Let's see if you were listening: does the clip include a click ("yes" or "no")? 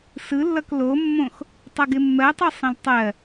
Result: no